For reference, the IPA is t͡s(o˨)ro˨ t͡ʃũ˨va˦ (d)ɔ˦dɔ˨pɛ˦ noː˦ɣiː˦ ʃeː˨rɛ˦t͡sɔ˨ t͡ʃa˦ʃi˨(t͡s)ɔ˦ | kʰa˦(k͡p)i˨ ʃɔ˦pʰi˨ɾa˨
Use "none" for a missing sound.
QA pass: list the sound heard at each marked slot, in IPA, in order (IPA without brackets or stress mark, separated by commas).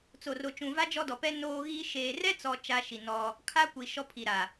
o˨, d͡ʒ, n, kʷ